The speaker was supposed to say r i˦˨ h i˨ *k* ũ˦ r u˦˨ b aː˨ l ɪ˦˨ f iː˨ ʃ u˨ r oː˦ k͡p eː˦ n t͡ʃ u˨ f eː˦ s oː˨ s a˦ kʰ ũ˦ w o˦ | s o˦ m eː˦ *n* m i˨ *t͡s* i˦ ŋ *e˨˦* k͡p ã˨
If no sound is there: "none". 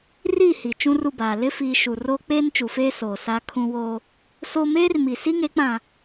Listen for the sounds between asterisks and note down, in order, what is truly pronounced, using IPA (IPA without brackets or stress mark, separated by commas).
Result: t͡ʃ, r, s, e˨˦